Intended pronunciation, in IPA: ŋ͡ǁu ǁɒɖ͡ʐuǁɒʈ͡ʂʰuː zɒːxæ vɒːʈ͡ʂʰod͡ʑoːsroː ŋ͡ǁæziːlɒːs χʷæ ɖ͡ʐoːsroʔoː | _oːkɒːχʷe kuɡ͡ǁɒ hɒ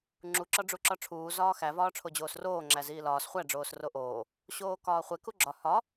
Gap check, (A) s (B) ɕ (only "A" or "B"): B